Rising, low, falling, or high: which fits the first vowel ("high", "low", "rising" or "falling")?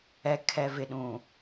low